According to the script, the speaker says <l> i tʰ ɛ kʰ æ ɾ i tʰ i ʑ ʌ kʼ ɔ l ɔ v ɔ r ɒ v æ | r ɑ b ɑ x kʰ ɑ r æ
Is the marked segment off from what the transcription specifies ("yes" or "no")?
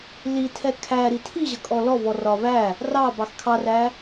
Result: no